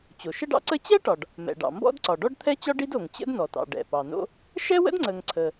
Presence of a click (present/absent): present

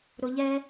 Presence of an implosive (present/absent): absent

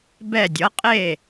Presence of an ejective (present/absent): present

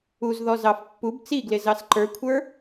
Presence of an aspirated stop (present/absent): present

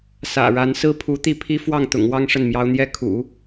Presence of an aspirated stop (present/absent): present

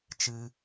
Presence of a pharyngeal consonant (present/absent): absent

